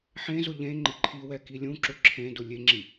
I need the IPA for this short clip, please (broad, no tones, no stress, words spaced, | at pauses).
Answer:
ħẽzʊ ʎẽ ŋ͡ǃɪǃʰiwɛ kilʲũǁʊ ǁʰẽdʊ lʲeŋ͡ǁi